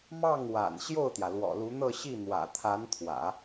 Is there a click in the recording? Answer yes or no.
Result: no